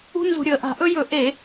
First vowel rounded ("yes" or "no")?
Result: yes